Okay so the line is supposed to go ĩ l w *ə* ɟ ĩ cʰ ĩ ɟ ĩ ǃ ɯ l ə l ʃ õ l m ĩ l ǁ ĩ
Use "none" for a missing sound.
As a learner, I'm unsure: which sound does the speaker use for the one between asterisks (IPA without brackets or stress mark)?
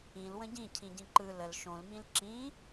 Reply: ə̃